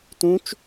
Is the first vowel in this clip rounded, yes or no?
yes